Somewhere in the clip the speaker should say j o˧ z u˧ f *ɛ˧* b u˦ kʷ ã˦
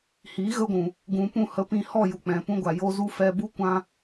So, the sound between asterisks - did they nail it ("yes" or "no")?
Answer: yes